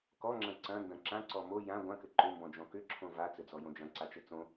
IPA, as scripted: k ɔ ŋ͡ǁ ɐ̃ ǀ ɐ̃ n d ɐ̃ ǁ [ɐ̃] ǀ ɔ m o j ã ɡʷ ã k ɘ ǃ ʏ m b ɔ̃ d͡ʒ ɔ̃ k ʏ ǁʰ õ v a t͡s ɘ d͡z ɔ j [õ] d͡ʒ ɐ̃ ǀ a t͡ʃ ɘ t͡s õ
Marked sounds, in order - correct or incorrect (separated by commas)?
incorrect, correct